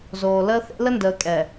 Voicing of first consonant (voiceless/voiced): voiced